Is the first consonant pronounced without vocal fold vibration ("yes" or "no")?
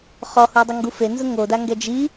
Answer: yes